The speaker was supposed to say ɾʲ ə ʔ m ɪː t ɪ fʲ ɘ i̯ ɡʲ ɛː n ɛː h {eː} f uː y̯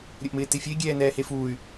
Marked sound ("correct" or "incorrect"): incorrect